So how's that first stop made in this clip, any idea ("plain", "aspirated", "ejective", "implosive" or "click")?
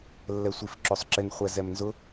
click